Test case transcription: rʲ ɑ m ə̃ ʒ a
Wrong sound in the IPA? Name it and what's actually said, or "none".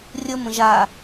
ɑ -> ə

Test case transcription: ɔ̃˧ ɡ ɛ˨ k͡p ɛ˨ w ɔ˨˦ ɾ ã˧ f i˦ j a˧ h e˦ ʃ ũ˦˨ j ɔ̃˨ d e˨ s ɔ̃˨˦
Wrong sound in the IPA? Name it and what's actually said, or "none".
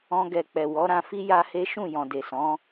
none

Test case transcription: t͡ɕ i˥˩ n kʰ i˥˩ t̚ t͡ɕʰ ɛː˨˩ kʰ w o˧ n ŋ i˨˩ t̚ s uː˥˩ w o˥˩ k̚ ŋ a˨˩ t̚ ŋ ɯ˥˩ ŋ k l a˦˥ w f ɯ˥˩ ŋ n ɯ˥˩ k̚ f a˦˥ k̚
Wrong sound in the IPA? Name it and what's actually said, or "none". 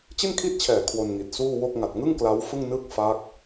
none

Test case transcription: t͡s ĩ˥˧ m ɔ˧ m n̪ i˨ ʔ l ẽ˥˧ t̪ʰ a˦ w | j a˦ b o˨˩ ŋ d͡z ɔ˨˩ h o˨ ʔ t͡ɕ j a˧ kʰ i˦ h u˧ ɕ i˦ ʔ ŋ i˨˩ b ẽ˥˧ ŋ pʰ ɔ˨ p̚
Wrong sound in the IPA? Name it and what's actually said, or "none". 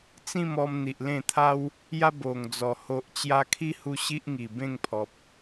none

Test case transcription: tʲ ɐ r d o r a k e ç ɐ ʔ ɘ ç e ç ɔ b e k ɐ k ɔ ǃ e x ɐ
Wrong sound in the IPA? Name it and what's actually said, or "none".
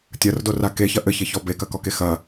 ǃ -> k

